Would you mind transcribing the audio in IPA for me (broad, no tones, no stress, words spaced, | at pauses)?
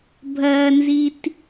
bʱɜnzit